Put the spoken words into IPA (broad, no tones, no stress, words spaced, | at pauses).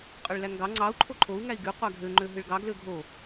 qʼøɭlæŋɡɑ ŋ͡ǀɑu̯ ǃʰoǃʰou̯ŋæi̯ ɡy qʷæɡʱø ŋ͡ǃøɦɯɭɡɑ ɡløɡʱo